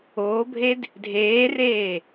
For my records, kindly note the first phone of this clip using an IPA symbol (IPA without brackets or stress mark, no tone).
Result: oː